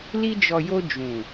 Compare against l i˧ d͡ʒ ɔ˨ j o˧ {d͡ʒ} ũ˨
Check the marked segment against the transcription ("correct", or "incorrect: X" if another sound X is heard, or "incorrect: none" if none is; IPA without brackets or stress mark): correct